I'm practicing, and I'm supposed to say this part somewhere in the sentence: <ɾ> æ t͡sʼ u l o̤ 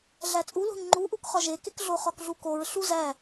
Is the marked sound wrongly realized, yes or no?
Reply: yes